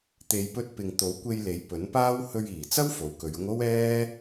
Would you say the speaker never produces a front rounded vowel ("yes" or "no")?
yes